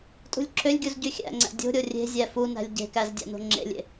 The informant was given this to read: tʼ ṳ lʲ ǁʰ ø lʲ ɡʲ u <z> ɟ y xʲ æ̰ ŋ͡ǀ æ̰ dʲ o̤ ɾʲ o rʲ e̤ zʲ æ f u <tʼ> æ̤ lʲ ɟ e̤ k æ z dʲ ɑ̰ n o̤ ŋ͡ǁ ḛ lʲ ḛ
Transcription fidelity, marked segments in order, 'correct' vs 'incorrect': correct, incorrect: n

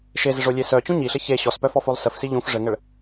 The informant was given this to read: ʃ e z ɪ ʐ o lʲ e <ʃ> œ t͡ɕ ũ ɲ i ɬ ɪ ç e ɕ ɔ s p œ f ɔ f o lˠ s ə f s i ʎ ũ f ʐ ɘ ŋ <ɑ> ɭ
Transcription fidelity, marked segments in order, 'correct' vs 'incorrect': incorrect: s, incorrect: ə

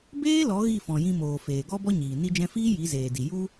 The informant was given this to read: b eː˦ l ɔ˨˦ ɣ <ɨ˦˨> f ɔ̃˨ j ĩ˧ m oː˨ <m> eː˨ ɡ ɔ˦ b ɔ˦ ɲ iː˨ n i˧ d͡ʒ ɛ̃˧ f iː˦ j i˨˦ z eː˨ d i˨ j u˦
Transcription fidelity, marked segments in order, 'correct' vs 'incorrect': incorrect: i˦˨, incorrect: f

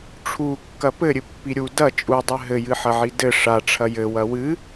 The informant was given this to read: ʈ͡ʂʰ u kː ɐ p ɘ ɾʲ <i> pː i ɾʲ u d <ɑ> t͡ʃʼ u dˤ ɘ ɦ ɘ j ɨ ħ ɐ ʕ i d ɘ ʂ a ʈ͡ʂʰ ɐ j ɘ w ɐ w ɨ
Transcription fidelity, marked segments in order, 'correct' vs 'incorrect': incorrect: ɨ, incorrect: ɐ

